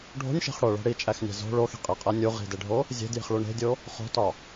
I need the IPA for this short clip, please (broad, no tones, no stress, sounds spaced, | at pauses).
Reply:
ɖʱ o̤ nʲ ʃ e̤ χ ɽ o ɭ æ̤ ɽ i t͡ʃʼ æ x nʲ æ̤ z o̤ ɭ o x i̤ qʼ e qʼ æ nʲ u ʁ i̤ d e ɖʱ o | zʲ e̤ d j i̤ χ ɭ u ɳ e̤ dʲ o | χ o̤ t ɒ